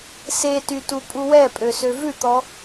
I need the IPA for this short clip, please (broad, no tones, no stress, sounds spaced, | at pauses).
s e t y t u pʼ u w ɛ pʼ ø s ø v ʉ t̪ ɔ